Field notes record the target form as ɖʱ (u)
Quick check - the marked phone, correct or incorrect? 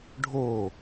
incorrect